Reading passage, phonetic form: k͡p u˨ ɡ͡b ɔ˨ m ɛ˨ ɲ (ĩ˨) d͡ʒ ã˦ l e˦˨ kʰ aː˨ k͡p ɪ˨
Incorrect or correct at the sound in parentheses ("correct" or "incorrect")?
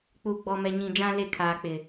correct